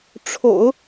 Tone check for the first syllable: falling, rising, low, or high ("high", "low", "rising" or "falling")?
low